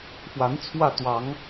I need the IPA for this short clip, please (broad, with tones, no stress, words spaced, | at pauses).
fwa˧˥n t͡sʰwä˥˩t̪wɑ˧˥ŋ